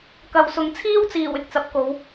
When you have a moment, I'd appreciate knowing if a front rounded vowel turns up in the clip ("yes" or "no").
no